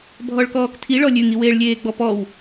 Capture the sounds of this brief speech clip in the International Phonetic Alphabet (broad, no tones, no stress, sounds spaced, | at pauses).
bʱ ɔ ɭ k ɔː k tʰ i ɭ ɔ lʲ ʉ ŋ i w eː ɭ lʲ eː ɡ͡b ɔ p ɔ w